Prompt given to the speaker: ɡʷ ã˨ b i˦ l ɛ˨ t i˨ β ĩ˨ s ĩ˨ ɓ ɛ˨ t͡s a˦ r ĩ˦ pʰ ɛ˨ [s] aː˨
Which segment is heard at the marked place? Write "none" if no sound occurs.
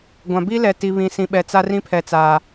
t͡s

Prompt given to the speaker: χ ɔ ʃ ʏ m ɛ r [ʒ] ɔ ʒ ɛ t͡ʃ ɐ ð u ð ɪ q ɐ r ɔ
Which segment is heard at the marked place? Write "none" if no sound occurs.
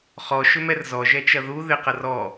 z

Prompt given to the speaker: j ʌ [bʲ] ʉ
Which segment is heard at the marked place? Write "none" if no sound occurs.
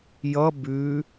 b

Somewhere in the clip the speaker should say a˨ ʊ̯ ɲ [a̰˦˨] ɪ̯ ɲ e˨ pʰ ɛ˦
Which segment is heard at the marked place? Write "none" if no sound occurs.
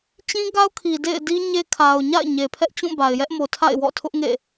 a̰˦˨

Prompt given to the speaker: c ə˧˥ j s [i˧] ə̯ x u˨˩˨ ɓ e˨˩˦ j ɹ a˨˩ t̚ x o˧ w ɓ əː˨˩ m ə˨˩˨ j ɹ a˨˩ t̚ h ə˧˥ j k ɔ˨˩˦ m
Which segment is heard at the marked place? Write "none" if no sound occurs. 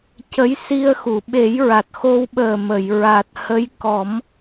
i˧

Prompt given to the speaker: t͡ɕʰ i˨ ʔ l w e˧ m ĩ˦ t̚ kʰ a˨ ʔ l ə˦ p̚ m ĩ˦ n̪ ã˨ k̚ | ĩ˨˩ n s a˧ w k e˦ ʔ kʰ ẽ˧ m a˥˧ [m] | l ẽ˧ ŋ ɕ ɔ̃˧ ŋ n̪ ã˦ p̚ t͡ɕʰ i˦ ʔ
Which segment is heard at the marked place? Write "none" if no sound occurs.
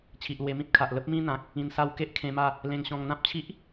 none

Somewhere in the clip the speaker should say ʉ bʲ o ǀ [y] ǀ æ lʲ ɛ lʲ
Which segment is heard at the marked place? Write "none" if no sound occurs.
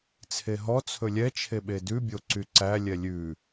y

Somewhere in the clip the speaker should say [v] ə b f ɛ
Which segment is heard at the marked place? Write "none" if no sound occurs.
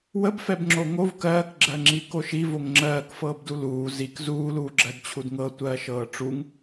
w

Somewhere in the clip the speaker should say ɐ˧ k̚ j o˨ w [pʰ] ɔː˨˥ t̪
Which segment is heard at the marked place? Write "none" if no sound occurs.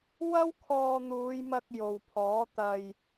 pʰ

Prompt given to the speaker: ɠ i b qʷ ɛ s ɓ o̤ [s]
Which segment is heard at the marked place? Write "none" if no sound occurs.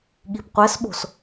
s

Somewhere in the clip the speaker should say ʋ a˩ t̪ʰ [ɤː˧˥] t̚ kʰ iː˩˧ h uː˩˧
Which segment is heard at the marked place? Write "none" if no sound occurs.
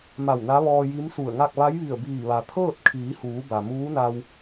ɤː˥˨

